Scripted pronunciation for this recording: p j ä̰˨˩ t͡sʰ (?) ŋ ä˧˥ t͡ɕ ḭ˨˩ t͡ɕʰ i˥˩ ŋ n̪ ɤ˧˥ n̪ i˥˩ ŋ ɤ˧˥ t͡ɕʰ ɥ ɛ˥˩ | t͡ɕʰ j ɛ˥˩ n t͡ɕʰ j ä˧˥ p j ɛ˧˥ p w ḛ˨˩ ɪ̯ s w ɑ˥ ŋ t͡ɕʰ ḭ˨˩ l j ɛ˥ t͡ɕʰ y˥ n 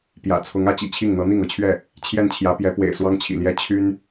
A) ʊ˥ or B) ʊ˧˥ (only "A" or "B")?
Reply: B